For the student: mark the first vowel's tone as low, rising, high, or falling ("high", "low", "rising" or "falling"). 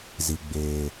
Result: low